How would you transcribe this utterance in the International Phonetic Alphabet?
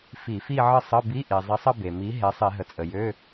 fi˧˩˧fi˥˧ʕə˥˧ sˤə˧˥˧bi˧˥˧ʔi˩ zˤe˨˥sˤə˥˧ be˩mi˨˥ ɦe˨˥sˤi˧˩˧ɦə˩ t͡sʼə˩jø˧˥˧

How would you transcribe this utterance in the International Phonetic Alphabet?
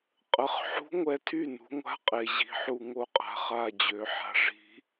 qʼə˩˧˩χ ħṳ˧˥ŋʷɛ˧ tʰy˥˩nṳ˩˧ŋʷa̤˧˥ qʼe˩˧ʑi̤˩˧˩ħu˥˩ ŋo˥˩qʼa̤˧˩ χa˥˩d͡ʑø˩˧ ħa̤˧˩ʐi̤˧˥

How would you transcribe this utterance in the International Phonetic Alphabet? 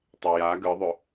tˤeja ɡɯðˤʏ

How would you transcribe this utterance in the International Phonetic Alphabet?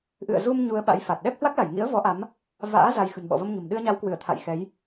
ʔɨ̰˧˨ə̯zu˧m ɲu˧ə̯ɓa̰˧˥jfa˨˩t̚ ɗɛ˦˥p̚hwa˦˥k̚la˧˩jŋḭ˧˥ə̯ vɔ˨˦ʔa˨˦m | va̰ː˧˥ za˧j xə̤˨˩nɓɔ̰˧˨və˧mɲə̤˨˩m ɗɨ˧ə̯ɲa˨˦wkwɨ˧˩ə̯t̪ʰa̰˧˨j xɛ˨˦j

